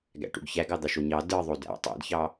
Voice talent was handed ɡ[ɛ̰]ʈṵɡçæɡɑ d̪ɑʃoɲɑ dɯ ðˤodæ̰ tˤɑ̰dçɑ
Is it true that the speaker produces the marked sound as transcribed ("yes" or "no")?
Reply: no